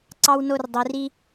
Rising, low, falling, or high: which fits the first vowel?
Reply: high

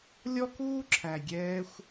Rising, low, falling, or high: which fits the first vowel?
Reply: high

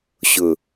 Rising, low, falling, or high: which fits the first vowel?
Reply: low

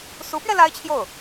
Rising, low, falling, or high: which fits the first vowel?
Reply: rising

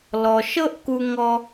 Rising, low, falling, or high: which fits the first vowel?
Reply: low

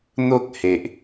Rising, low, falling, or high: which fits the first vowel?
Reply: high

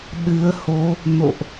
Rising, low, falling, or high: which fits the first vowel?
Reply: rising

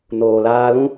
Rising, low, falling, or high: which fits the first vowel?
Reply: low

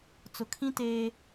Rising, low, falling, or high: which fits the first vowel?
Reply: low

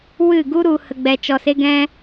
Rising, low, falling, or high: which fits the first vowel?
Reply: falling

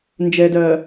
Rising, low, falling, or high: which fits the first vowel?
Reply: low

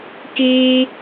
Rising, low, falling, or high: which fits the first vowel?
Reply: high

